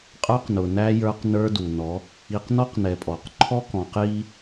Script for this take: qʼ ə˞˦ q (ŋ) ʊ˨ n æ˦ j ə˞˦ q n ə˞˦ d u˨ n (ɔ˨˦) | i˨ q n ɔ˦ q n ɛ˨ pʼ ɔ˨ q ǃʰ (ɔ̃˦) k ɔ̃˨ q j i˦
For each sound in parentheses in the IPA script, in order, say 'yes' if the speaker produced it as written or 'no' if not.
no, yes, no

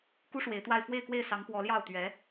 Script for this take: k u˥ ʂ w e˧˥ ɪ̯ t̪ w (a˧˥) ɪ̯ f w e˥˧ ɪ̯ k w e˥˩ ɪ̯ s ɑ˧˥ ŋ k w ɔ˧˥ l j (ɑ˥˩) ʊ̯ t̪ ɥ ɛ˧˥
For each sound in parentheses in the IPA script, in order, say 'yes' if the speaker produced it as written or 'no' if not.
no, yes

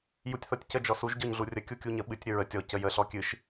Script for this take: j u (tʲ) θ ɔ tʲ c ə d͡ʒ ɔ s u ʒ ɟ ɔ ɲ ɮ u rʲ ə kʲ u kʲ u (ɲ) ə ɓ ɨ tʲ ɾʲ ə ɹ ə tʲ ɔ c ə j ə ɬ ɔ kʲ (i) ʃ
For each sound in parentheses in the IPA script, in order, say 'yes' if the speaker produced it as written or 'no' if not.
yes, yes, no

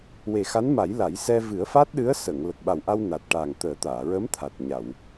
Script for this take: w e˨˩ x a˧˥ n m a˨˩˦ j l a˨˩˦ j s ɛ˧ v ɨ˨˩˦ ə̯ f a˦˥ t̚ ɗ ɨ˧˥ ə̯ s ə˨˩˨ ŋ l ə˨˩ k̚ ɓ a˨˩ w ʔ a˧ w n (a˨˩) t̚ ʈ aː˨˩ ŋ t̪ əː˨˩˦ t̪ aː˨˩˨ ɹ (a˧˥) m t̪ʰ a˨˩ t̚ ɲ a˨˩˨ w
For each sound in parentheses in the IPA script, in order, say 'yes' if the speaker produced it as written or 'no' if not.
yes, no

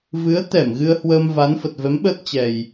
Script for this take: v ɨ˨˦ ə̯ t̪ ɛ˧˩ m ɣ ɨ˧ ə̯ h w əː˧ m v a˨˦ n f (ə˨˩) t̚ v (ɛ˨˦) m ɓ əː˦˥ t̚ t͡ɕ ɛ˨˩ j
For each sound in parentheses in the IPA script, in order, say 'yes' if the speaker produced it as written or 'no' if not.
yes, yes

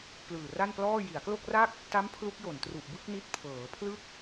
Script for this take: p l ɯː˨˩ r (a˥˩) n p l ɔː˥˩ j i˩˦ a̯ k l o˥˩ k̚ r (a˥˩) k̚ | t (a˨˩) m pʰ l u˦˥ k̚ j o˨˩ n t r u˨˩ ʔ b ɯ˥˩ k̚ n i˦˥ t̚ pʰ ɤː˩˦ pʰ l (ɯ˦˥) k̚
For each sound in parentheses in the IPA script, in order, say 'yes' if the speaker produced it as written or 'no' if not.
yes, yes, no, no

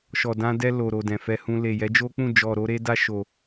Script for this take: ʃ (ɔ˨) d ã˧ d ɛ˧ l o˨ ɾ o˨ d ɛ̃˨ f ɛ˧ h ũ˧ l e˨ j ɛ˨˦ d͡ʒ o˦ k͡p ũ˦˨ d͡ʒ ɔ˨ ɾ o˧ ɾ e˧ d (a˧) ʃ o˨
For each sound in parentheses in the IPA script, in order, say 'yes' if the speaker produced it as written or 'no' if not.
yes, yes

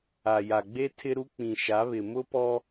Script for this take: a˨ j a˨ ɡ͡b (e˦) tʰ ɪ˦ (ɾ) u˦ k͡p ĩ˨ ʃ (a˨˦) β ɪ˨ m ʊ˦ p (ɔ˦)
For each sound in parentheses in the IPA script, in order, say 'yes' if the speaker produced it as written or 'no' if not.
yes, yes, yes, yes

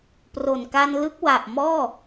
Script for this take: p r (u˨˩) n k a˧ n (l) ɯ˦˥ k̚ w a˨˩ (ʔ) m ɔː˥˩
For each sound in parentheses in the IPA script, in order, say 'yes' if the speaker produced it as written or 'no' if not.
no, yes, yes

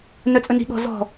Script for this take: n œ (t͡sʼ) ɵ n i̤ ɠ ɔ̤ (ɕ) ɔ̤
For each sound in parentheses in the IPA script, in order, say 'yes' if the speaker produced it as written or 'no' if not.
yes, no

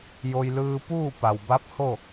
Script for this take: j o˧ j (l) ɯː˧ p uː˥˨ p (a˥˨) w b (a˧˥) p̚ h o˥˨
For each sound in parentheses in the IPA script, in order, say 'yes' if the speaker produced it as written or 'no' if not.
yes, no, yes

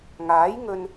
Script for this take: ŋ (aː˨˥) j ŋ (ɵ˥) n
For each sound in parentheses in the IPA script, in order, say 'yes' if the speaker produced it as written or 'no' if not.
yes, no

